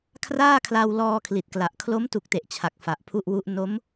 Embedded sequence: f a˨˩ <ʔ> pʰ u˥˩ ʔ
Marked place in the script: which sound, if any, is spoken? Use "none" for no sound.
ʔ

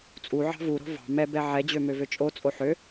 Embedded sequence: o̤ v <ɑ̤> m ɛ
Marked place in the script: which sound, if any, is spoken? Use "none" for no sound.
ɑ̤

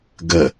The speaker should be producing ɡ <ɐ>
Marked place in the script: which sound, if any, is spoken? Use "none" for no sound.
ə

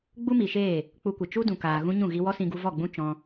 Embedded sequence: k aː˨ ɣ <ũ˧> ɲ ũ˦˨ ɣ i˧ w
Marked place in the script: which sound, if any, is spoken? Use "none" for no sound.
ũ˦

